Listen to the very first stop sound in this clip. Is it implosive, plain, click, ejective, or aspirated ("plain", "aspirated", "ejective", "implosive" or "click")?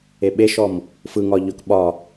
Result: implosive